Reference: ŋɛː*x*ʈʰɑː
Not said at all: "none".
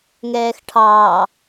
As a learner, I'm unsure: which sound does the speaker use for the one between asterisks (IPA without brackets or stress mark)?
x